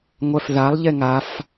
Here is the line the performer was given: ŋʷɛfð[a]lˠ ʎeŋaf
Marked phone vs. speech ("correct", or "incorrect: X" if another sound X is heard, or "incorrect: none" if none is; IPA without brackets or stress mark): correct